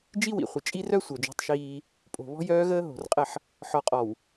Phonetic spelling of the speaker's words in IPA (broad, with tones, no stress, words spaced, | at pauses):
d͡ʒi˦wḭ˨ χʷə˨ t͡ʃʼi˦ rœ˦ sʷœ˨d͡ʒɔ̤˦tˤʃiː˦ | pʼo̤˨βɔ̤˦jœː˦ɣəː˦ ɦo̤˨rqʼə˦˨ħ | ħɔ˨qʼɔ˨w